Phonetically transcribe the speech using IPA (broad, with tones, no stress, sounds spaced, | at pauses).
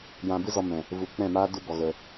j ã˧ b ɨ˦ z ɔ˧ m ɛ̃˨ | v u˨˦ k͡p ɛ̃˦˨ m aː˦ d u˧ b ɔ˨ ɣ ə˧